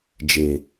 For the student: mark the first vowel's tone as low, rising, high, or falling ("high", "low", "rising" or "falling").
low